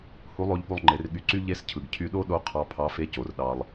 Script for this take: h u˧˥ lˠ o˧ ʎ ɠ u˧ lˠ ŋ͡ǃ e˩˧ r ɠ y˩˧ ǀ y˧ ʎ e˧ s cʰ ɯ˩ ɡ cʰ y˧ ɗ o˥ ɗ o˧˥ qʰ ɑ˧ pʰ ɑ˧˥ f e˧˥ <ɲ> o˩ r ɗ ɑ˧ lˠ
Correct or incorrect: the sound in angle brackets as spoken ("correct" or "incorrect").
incorrect